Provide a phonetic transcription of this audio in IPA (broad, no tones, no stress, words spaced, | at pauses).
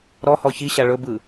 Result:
ɾɔhɔ çiɕa ɭɵbɯ